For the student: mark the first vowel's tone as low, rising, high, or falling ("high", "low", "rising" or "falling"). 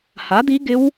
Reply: rising